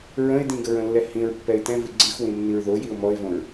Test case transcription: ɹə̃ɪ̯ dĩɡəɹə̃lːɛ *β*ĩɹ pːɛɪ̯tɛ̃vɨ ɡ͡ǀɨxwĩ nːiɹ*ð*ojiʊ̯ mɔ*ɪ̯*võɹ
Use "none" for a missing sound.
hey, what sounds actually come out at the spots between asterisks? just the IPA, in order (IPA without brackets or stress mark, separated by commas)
h, ð, ɪ̯